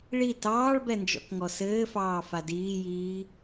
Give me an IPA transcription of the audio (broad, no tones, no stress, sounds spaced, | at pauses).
ɭ i t ɑː ɭ b ɛ n d͡ʒ ɔ̰ k ŋ ɔ s ɘː f ɑː f a d iː j iː